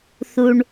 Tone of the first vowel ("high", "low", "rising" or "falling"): low